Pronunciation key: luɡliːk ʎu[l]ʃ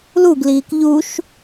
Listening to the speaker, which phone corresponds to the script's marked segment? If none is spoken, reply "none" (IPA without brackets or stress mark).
none